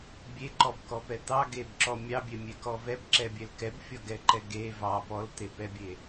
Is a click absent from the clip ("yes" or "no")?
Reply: no